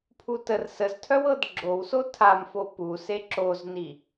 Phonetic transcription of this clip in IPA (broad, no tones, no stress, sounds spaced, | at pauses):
pʰ u t ə r s ə z tʰ œ w ɤ d ɡ͡ǁ o w s o tʰ a m f o p u s e ǁ o z n i